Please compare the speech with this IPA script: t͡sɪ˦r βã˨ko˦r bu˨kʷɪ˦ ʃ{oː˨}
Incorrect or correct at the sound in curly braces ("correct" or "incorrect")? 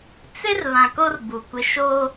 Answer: incorrect